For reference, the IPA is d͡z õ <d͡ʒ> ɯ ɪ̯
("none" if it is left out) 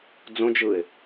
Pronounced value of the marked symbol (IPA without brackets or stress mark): d͡ʒ